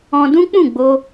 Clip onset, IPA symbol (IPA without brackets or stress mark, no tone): ɔ̃